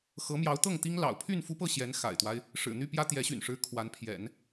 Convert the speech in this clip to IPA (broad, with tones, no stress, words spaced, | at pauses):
xɤ˧˥mjɑ˧˥ʊ̯t̪ɤ˥˩ŋt̪i˥ŋ lɑ̰˨˩ʊ̯pʰy˥˩nfu˥pɤ˥˩ ɕjɛ˧˥nxa̰˨˩ɪ̯t̪wa˦ɪ̯ | ʂɻ̩˨˩n̪y˥˩pjä˥ t̪jɛ˧˥ɕy̰˨˩nʂɻ̩˧˥ kʰwa˧˥npʰjɛ̰˨˩˦n